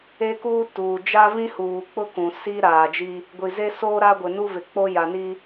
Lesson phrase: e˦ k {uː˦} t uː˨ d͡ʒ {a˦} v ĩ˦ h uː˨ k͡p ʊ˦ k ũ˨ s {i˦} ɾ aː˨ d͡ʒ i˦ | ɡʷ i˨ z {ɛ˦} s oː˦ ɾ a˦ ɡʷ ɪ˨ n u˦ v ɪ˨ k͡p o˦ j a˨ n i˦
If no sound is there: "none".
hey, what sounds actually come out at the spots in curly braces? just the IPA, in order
uː˦, a˦, i˦, e˦

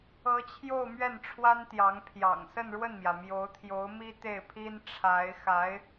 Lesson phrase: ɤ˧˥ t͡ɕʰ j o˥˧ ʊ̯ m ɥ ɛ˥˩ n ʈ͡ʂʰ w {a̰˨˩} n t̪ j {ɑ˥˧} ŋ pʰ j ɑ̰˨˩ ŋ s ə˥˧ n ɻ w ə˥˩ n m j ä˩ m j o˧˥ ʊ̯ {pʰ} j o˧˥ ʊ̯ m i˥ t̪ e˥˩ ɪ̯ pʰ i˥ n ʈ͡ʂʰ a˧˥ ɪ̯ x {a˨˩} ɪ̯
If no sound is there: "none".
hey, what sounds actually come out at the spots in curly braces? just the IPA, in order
a˥, ɑ˧˥, t̪ʰ, a˧˥

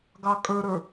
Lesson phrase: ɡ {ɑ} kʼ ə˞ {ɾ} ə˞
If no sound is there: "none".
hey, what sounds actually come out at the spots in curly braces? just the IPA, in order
ɑ, ɾ

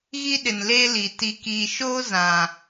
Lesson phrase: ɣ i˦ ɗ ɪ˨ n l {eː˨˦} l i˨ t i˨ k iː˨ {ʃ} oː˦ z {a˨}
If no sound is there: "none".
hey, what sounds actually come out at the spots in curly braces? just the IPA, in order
eː˦, ʃ, ã˨

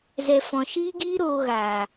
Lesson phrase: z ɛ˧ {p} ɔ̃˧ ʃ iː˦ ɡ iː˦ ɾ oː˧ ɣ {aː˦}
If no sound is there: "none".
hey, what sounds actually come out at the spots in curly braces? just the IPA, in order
f, aː˨

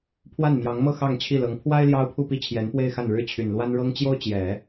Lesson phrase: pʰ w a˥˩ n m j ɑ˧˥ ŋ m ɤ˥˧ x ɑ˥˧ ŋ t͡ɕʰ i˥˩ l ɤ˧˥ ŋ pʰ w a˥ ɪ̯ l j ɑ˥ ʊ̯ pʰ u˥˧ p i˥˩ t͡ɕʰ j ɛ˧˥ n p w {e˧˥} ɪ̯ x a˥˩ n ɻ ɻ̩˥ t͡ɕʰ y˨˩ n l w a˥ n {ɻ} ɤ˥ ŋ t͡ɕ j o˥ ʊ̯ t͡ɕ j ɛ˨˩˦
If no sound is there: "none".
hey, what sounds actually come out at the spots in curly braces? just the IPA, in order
e˥˧, ɻ

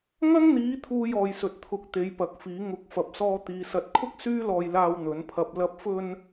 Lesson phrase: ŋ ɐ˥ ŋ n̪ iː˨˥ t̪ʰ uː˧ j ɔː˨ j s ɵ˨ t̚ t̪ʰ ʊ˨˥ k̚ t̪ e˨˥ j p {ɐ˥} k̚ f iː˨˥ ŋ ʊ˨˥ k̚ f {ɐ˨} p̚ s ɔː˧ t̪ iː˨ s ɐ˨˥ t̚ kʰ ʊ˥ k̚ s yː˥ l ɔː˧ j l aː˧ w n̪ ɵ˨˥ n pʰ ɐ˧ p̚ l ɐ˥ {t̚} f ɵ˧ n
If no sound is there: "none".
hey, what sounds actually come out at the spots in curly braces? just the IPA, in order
ɐ˨˥, ɐ˨, p̚

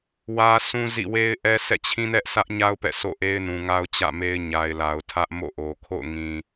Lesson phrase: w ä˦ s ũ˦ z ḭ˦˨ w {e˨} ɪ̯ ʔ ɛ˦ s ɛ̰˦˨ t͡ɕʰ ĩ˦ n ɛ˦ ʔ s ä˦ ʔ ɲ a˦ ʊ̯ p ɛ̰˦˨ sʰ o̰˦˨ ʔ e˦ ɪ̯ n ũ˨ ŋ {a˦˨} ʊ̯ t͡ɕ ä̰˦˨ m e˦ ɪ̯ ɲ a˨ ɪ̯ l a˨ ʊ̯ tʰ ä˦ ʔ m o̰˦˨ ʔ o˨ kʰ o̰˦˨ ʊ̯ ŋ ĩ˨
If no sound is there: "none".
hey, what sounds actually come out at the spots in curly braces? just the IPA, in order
e˦, a˦

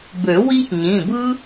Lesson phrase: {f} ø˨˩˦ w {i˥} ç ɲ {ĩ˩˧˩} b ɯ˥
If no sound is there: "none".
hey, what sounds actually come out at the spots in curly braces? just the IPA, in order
b, i˥, ĩ˩˧˩

